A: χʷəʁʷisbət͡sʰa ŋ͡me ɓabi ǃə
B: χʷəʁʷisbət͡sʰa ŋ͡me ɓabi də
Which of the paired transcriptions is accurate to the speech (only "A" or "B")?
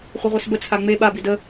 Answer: B